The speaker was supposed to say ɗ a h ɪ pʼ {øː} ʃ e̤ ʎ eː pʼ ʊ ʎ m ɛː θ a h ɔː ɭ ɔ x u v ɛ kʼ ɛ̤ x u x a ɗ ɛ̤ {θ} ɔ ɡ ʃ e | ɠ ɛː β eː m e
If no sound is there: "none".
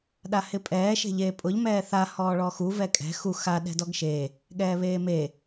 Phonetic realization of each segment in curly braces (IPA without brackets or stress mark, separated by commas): ɛː, d